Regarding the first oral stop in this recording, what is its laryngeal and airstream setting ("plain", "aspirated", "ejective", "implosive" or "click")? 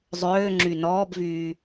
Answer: click